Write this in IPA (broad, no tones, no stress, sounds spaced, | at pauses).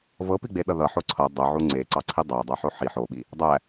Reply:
v ɤ p i ɡ͡b e ɗ ʌ ð ʌ ħ o ǀʰ ʌ dˤ o ʕ u ŋ͡ǀ e ǀ ɑ ǀʰ i dˤ æ dˤ ʌ ħ o ħ i ħ o ɓ i | dˤ æ